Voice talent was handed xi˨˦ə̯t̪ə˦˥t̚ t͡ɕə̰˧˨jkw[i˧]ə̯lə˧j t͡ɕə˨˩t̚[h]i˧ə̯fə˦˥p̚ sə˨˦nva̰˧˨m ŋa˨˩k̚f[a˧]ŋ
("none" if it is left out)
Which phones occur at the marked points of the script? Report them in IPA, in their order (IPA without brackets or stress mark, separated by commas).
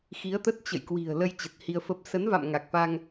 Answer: i̤˨˩, h, a˧